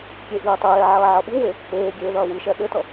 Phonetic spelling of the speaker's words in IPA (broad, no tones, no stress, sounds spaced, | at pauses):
kʲ e ʔ iː tˤ ɘ j ɛ ʕ ɐː ʕ ʌ ɓ u w e | p eː ɡʲ eː ð ɐː w ɨ ʃ ɛ ɗ ɘ t ʌ